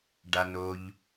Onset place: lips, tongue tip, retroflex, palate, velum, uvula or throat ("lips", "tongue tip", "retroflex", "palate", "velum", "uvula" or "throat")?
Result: retroflex